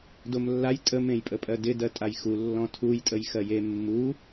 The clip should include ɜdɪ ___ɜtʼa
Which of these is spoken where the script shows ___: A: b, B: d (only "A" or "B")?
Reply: B